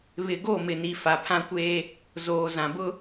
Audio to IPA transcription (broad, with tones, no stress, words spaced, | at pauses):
βɪ˨ɡo˦˨mɪ˨ni˨ fa˨pʰã˦kʷeː˦ | zoː˨zã˨bʊ˦